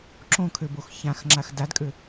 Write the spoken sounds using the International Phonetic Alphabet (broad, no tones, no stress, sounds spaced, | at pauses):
ǁ õ kʰ ø b o x ç ã x ŋ͡ǁ a x d a d kʼ ø